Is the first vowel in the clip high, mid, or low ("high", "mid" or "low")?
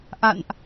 low